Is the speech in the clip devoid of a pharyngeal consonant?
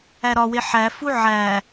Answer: no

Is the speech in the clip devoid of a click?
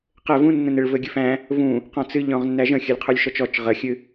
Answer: yes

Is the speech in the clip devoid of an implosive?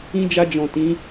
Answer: yes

